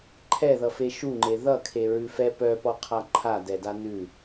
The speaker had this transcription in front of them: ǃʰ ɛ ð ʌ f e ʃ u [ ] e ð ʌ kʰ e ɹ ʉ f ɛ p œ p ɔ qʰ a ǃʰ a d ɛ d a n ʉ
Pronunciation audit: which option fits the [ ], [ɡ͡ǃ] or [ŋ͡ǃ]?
ŋ͡ǃ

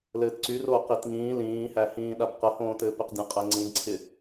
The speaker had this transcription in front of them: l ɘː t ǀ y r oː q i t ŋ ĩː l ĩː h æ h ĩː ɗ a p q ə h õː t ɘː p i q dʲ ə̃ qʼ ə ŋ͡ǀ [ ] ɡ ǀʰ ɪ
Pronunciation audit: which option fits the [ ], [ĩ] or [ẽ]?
ĩ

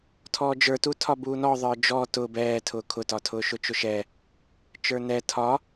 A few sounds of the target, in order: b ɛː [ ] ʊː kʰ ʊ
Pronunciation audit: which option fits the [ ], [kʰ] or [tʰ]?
tʰ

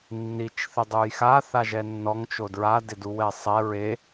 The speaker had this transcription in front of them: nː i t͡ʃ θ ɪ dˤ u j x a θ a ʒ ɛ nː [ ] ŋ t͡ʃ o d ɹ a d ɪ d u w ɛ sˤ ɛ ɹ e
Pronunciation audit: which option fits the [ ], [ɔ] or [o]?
ɔ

